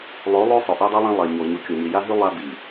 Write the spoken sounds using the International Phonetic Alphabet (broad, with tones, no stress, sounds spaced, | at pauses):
lˠ o˨˦ lˠ o˦ sˤ ɵ˨ ʔ e˦ dˤ i˦ lˠ ã˦ lˠ e˨ ɲ o˨ ɲ u˨ kʲ o˨ ɲ i˨ j a˦ ɦ ʉ˦ lˠ a˦ b i˨